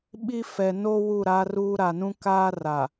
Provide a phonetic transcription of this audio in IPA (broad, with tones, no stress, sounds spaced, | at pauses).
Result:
ɓ i˦ f ɛ˨ n o˦ w u˦˨ ɾ aː˦ r uː˦ ɾ a˨ n ũ˦ k aː˦ r a˨